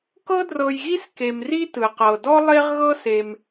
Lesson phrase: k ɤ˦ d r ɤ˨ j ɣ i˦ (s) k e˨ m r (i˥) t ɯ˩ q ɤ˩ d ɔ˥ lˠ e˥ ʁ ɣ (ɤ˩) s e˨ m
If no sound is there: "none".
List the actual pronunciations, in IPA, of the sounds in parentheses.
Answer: s, i˥, ɤ˥

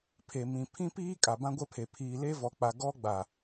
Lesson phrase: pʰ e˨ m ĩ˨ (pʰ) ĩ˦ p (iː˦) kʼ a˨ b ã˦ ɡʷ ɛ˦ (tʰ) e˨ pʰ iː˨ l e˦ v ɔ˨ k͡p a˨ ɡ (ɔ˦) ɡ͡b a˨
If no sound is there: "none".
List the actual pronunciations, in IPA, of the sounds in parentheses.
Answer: pʰ, iː˦, pʰ, ɔ˦

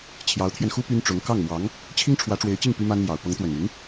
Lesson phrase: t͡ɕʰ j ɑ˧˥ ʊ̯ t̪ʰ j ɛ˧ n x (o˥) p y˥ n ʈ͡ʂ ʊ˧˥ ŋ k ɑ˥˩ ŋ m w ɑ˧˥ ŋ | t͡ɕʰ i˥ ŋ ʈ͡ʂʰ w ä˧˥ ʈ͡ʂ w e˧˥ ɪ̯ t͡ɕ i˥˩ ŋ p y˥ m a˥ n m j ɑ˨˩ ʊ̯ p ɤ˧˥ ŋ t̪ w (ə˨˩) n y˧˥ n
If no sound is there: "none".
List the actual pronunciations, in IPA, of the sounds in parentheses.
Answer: u˥, ə˨˩

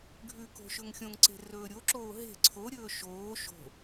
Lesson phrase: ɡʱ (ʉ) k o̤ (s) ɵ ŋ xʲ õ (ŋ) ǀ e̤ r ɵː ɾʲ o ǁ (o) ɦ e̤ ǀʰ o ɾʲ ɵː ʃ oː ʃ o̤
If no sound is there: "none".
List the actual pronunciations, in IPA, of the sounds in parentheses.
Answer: ʉ, ʃ, ŋ, oː

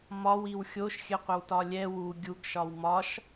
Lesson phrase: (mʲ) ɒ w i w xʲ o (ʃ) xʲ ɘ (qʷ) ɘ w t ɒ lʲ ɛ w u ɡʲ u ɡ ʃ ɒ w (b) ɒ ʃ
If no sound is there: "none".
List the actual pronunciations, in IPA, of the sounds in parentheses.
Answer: m, ʃ, qʷ, m

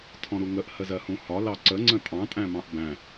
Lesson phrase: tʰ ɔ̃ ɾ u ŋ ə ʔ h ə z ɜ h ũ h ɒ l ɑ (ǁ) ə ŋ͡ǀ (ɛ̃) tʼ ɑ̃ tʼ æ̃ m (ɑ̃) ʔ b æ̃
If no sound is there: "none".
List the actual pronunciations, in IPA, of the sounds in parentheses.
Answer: ǀ, ə̃, ɑ̃

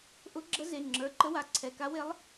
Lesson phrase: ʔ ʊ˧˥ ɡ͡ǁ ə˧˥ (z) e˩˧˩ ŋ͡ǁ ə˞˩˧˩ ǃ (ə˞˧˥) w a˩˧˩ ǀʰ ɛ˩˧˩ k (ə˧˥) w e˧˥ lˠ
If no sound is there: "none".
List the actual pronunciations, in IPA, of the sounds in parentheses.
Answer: z, ə˧˥, a˧˥

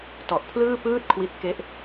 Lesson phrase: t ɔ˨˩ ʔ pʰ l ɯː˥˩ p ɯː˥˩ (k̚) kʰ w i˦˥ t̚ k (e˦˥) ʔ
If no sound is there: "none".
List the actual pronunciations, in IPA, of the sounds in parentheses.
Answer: t̚, e˦˥

